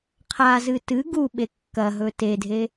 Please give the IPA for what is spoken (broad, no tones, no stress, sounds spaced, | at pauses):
qʰ a z ɨ t ɨ ɡ u ɓ e kː ɐ ɦ ɵ t e dʱ e